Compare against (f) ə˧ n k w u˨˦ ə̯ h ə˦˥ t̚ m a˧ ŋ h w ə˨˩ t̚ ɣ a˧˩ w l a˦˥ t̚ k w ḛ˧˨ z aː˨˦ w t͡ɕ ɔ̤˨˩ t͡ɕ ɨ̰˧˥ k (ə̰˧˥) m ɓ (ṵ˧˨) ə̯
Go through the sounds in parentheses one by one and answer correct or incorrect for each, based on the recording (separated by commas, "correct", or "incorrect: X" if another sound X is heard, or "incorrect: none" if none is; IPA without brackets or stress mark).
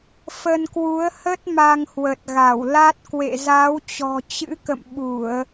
correct, incorrect: ə̰˧˨, incorrect: u˧˩˨